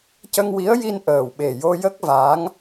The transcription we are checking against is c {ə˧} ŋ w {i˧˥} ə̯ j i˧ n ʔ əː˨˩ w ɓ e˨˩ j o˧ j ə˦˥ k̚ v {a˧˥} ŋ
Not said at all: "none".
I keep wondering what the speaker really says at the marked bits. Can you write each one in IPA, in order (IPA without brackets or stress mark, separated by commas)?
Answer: ə˧, i˧˥, a˧˥